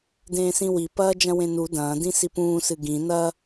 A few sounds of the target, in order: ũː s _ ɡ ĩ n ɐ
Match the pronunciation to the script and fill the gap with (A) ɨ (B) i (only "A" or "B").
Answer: A